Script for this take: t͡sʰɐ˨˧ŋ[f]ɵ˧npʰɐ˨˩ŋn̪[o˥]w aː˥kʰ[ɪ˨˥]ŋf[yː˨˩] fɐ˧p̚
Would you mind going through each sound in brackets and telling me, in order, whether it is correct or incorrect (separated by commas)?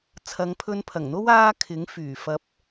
incorrect, correct, correct, correct